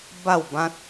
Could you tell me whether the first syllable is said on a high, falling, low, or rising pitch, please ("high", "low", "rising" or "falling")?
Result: falling